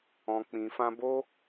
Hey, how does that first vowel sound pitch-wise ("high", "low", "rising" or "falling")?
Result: low